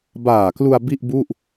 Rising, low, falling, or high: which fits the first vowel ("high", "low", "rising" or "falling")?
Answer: low